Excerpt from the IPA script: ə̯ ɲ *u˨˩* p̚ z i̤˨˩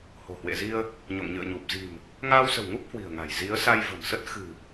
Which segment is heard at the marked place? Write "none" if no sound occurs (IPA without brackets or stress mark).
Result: u˨˩